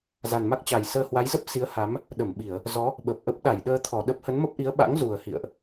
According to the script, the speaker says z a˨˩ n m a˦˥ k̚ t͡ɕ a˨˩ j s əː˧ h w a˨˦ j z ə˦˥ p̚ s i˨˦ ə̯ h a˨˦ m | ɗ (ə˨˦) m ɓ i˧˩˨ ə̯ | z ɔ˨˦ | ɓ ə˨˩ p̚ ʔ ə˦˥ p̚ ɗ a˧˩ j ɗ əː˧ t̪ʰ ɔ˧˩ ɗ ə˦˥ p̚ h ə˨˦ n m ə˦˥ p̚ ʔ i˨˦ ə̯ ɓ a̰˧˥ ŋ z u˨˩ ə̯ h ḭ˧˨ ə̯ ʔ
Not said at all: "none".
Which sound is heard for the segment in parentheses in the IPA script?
ə˧˩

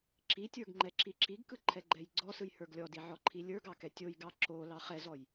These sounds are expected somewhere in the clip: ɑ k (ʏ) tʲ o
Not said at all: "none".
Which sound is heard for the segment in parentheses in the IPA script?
ɛ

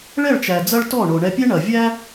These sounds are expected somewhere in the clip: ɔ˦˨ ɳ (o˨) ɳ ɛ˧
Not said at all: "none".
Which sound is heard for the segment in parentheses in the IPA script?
o˨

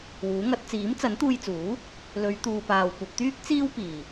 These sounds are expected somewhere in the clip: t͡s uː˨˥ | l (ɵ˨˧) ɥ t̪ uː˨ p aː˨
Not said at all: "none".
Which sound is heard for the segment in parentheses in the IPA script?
ɵ˨˧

